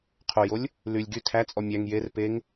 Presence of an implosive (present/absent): absent